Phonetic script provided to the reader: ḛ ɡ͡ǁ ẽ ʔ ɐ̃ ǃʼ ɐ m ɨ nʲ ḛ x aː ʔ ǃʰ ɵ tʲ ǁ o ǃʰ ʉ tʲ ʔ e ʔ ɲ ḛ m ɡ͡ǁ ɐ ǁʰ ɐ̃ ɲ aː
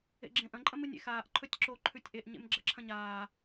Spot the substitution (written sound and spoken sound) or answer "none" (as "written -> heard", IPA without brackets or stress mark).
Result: none